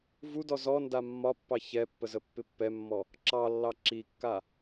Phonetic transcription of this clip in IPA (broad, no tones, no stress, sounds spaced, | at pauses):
v u d ɔ z ɔ n d a mː ɒ pː ɑ ç ɛ pː ə z ə pː ɪ pː ɛ mː ɔ | ǁ ɑ lː ɑ ǁ i kː a